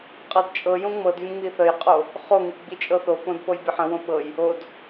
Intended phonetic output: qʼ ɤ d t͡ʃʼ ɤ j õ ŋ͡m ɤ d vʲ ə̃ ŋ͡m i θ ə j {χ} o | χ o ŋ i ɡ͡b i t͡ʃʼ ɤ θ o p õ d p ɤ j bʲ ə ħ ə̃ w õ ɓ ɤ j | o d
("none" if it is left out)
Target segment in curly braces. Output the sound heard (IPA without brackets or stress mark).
qʼ